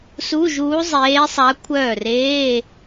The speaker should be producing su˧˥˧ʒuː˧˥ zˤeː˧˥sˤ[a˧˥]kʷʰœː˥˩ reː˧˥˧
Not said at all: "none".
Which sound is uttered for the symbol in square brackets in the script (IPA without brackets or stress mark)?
a˧˥